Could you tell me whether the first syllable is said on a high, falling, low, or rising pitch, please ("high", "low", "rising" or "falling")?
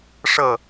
falling